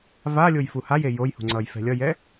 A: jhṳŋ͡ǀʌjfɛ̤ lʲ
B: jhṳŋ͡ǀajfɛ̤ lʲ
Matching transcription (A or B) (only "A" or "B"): A